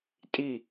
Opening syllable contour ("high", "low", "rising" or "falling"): falling